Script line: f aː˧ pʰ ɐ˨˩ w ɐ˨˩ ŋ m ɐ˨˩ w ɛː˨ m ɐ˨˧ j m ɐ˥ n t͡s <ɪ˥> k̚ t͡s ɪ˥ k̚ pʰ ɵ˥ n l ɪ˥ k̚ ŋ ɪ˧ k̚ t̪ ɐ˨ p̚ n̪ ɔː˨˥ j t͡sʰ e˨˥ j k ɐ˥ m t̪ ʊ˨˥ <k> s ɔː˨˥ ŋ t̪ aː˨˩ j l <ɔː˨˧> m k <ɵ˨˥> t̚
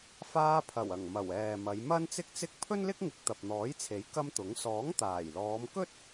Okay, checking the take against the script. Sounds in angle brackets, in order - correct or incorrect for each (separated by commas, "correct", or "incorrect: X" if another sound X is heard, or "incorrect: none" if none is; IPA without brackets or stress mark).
correct, incorrect: ŋ, correct, incorrect: ɵ˥